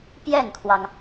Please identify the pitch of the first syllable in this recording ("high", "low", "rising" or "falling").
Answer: falling